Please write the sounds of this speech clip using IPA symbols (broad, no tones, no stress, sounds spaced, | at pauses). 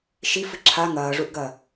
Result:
ʃ i f ɨ ǁʰ a ŋ ɐː ʐ u ʔ ɡ ɐ